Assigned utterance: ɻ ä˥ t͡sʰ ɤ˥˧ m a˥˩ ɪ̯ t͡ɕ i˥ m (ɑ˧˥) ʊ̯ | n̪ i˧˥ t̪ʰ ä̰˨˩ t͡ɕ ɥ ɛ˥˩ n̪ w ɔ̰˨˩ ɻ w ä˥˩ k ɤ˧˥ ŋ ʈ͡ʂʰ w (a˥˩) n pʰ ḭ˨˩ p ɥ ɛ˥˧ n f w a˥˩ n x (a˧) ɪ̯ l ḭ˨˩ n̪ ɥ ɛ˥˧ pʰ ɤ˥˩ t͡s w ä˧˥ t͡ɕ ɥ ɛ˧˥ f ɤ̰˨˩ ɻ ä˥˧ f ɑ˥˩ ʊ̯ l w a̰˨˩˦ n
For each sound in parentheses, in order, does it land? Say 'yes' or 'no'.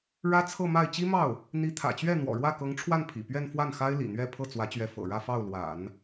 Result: no, yes, no

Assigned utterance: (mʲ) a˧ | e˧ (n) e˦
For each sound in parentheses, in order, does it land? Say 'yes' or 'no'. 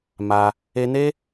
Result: no, yes

